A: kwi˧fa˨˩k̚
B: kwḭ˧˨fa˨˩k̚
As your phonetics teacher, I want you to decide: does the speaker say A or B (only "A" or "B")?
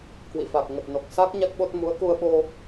B